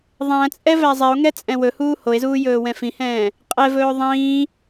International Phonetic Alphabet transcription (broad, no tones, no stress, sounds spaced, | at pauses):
ðˤ æ̃ t͡sʼ ɛ v æ zˤ ɛ o̯ ŋ ɛ t͡sʼ ɛ̃ w ɵ h uː h o e̯ z uː j ɵː w ɛ̃ f ĩ h ɛ̃ː | qʼ ɛ v ɵː ðˤ ĩː